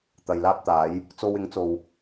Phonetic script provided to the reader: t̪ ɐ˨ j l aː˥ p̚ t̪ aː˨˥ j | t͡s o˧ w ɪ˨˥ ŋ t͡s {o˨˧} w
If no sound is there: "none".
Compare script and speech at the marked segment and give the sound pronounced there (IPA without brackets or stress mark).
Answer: o˨